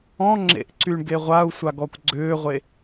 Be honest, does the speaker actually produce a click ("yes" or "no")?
yes